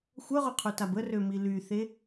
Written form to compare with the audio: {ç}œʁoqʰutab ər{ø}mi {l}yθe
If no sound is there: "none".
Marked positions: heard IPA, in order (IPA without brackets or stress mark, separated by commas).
xʷ, ø, l